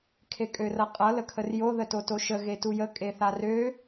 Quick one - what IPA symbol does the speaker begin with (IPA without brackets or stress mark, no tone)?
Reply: kʰ